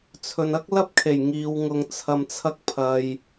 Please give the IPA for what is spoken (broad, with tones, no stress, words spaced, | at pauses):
t͡sʰɵ˨nɐ˥k̚lɐ˥p̚kʰe˨˩j ŋiː˨˧w ŋʊ˧ŋt͡sʰɐ˧mt͡sʰɐ˥k̚ pʰɐ˨j